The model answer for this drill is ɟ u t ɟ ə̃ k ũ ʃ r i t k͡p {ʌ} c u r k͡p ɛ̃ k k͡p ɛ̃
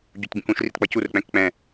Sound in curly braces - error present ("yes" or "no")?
no